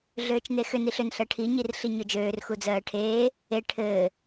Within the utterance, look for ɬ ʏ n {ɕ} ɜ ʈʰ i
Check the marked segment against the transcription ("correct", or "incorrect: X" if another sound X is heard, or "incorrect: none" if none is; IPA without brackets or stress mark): incorrect: ɬ